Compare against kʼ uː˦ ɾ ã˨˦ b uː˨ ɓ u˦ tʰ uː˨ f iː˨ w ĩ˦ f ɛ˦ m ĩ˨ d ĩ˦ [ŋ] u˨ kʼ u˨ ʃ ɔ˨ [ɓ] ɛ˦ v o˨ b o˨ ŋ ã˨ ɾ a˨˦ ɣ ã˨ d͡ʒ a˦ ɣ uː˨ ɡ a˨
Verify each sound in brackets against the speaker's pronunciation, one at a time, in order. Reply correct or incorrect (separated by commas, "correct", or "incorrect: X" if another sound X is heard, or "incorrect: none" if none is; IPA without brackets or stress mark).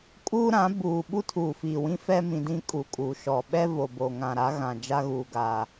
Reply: incorrect: kʼ, correct